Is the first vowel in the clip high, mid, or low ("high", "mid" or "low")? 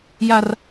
low